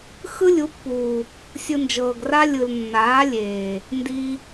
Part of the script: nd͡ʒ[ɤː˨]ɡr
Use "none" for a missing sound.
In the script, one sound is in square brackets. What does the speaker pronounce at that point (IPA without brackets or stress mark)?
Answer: ɤː˨